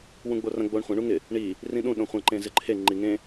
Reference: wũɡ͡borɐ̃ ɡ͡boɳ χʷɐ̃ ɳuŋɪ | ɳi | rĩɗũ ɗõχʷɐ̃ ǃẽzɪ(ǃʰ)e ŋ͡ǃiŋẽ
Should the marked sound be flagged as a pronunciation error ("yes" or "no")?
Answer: no